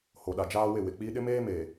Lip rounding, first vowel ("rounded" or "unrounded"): rounded